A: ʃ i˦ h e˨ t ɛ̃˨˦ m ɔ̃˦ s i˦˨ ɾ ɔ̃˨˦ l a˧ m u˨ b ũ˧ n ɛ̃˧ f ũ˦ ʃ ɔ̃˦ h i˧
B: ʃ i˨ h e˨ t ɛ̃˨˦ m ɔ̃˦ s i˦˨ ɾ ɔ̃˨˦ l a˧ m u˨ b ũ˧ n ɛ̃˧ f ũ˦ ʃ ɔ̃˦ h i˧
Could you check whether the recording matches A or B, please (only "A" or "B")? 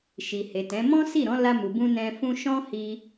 B